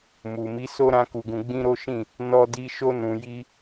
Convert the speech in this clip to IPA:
mu˨mi˨˦so˦ ɾã˧ku˨ɡũ˨ ɡ͡bĩ˧ ɾo˦ʃĩ˦˨ | nɔ˧di˧ ʃo˧nũ˨ji˧

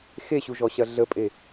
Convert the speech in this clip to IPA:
xeɕuʒɔɕɐ ɮəpʼe

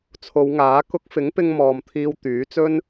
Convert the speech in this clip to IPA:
t͡sʰo˨˧wŋaː˨˥ kʊ˧k̚fɪ˨˥ŋpɪ˧ŋ mɔː˨mt̪ʰiː˧w t̪yː˨˥t͡sɵ˥n

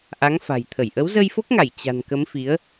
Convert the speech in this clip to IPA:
ʔa˨˦ŋfa̤˨˩jt̪ʰə˧˩j ʔə˨˦wzə˧jfo˦˥k̚ŋa˧˩j t͡ɕa̤˨˩nkə˨˦m fi˨˦ə̯

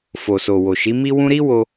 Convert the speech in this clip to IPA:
fo˨so˨ wo˨ʃi˨˦mi˦wũ˦ ɾi˦wo˧

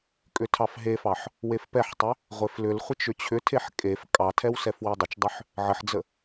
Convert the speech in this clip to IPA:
kʼʏtʰɑfɦefɑħ | wefpɛħtˤʏ | ʁʷeflʏlχʷət͡ʃ ʏt͡ɕʰʏtʰeħ kʼef kʼɑtʰɛw sɛfwedˤət͡ʃdˤʏħ | ʕəħd͡zə

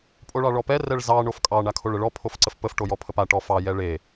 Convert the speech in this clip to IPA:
pʼoɭɑɭɔpɛ rɛɭzɑ ɳofkʼɑ ɳakʰoɭəɭɔ pʰofǀəfpəf ʈojɔpʰəpa ʈɔfɑ jɛɭe

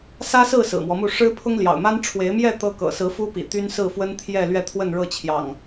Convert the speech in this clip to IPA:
sä˦sɹ̩˥˨ sɹ̩˨˩mwɔ˦mu˥˨ ʂɻ̩˦pʰʊ˦ŋ ljɑ̰˨˩ʊ̯ma˦n ʈ͡ʂʰwe˨˦ɪ̯mjɛ˥˨ t̪ɤ˦kɤ̰˨˩ sɹ̩˨˦ fu˦pḭ˨˩ t̪y˦nsɹ̩˥˨fwə˦nt̪ʰjɛ˥˨ lɥɛ˥˨t̪ʰwə˥˨nɻɤ˥˨t͡ɕʰjɑ̰˨˩ŋ

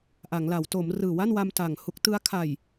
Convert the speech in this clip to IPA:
ʔa˩˦ŋla˩˦w to˩˦m rɯː˨˩wa˥˩nwa˧m ta˨˩ŋ hu˦˥k̚tɯ˦˥a̯ kʰa˨˩j

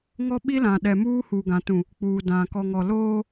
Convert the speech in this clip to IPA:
ŋɔ˦ɓi˦lã˨ ɗɛ˨muː˦ huː˨ɡã˨tũ˨ | k͡puː˨dã˨ kɔ˨ŋɔ˨loː˦

